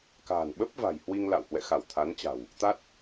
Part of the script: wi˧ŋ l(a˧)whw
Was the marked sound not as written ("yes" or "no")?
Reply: yes